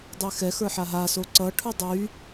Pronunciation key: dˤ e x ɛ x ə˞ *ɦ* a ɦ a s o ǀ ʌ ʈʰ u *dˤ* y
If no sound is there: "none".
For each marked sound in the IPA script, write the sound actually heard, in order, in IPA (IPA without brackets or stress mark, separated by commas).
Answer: ħ, dˤ